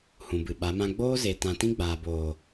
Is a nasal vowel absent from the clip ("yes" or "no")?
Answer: no